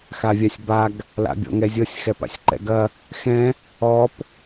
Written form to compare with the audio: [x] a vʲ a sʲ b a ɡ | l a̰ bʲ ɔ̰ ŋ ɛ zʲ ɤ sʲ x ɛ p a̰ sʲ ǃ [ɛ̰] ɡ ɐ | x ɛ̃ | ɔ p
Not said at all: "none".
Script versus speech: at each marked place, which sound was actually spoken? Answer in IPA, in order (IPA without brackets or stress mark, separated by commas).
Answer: x, ɛ̰